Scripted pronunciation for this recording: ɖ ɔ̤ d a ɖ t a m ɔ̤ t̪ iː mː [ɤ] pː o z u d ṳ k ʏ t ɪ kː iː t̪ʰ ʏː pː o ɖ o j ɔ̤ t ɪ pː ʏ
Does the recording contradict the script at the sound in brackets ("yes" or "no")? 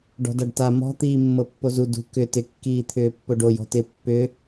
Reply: no